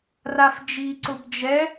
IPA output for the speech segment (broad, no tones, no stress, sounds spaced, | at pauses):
r a f d͡ʒ i ǀ ʊ b d͡ʒ ɛ